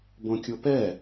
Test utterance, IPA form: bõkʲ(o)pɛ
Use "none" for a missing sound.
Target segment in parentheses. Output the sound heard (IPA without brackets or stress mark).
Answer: o